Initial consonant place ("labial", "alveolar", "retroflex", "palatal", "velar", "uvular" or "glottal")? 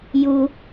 palatal